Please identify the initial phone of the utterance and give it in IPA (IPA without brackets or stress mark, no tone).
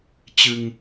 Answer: t͡ɕ